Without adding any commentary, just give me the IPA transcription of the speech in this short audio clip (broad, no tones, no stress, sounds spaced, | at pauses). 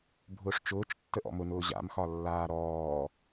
bʱ ʊː ʂ t͡ʃ ʊː t͡ʃ tː ə ʔ ɔ̰ m ʊ n ʊː ʑ a̰ m x ɒ lː aː ɾ ɔː